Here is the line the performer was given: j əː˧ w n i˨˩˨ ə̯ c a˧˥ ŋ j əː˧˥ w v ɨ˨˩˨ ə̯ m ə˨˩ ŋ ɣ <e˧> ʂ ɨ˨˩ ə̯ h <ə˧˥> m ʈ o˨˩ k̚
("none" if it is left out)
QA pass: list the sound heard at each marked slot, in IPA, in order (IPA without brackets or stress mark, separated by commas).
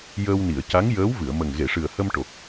e˨˩˨, ə˧